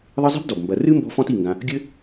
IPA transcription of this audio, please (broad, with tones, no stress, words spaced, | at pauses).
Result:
ðˤɨ˦zˤɛ̤˥bdɔ˩bmbɐ˨ rɨ˥ mbɔ̤˦fɔ̃˦t i˩ŋɡã˨ | ɡʲɘ˦